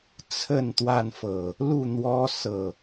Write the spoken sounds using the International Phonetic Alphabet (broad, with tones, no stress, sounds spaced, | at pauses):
t͡sʰ ə˥˨ n t̪ w a˥˨ n f ɤ˨˩ | l u˥˨ n̪ w ɔ˦ s ɤ˥˨